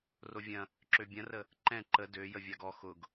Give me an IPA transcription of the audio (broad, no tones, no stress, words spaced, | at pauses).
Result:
rovʲɐ̃ | ǁøbʲɐ̃rə | ǃɛ̃ ǃə dø jəvʲaɡɔ xʊɡ